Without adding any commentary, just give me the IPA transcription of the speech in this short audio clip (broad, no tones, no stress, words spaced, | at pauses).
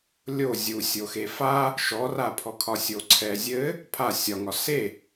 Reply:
lʲo zʲu sʲoxefa | ʃɔrapʰɔkʰɒ sʲoǀʰɛzʲɘ | pʰa sʲɒ ŋɒse